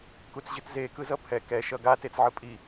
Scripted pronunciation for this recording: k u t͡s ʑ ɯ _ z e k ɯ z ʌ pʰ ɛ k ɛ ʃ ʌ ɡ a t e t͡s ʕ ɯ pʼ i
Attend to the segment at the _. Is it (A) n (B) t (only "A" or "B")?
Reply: B